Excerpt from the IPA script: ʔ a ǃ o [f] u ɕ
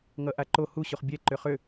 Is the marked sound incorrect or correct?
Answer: incorrect